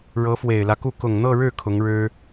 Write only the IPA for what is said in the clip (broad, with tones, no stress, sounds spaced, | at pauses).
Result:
ɻ ɤ˧˥ f w e˨˩ ɪ̯ l ä˦ k u˥˩ k ʊ˨˩ ŋ n̪ ɤ˥˧ ɻ ɻ̩˥˩ kʰ ʊ˧˥ ŋ ɻ ɻ̩˥